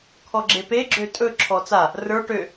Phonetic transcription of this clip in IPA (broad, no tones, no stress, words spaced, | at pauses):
kʰɔɡ͡ǁepe ɡ͡ǁøtʼɵ ǁʰɔt͡sa | rə˞ ʈø